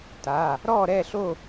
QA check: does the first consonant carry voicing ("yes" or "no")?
no